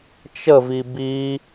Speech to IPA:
t͡ʃ ə v i b i

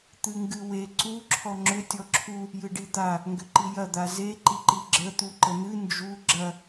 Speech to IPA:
t̪ ɨ ŋ ɡ ɨ w e ǀ u ǁʰ ɔ ŋ͡ǁ ʏ tʲ ɔ ǁʰ u | j ɨ ɖ i d̪ a | ŋ ɡ ʏ ǃ i j ɐ d̪ a z e ǃ i ǃ i ɡ͡ǁ ə t̪ u ǃ ə n̪ ɨ n d͡ʒ u ɡ͡ǁ ɐ

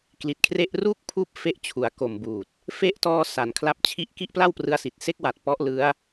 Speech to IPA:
k l i˨˩ t̚ kʰ r e˥˩ ʔ r uː˥˩ k̚ pʰ uː˦˥ p̚ f e˦˥ ʔ t͡ɕʰ u˩˦ a̯ k o˨˩ m b uː˨˩ t̚ | f e˦˥ ʔ t ɔː˧ s a˩˦ n kʰ l a˦˥ p̚ t͡ɕʰ i˥˩ ʔ k i˥˩ ʔ p l a˥˩ w p r ɯ˧ a̯ s i˨˩ t̚ s e˦˥ k̚ w a˨˩ t̚ p ɔ˦˥ ʔ l ɯ˦˥ a̯

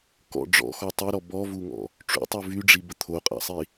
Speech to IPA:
k ɔ̰ ɖ͡ʐ ɔ̰ x ɔ tˤ e ɾ ɔ b ɔ v u ŋ ɔ̰ | ʈ͡ʂ ṵ tˤ u v y ɖ͡ʐ i b ə t̪ʰ o qʼ a̰ sˤ i

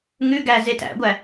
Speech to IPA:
ŋ ʉ ɡ æ z e t æ̰ ɡʷ æ

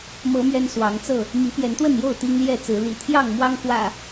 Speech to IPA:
m ɤ˨˦ m ɥ ɛ˦ n s w ɑ˨˦ ŋ t͡s ɤ˥˨ | m i˨˦ p j ɛ˨˦ n t̪ w ə˥˨ n j o˥˨ ʊ̯ t̪ i˦ ŋ l j ɛ˥˨ t͡s ɹ̩˨˦ l ḭ˨˩ t̪ʰ j ɑ˥˨ ŋ m w ɑ˦ ŋ x w ä̰˨˩

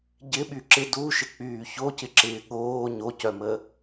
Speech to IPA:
ɟ ɪ ɓ y ǁ ɪ d u ʃ ɪ k͡p yː ç o c ɪ ǁ ɪː ɠ oː ɲ o c œ m ə

